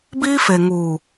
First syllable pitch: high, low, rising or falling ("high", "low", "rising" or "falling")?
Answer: high